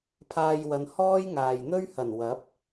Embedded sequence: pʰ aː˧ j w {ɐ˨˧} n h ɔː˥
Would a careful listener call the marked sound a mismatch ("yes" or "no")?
no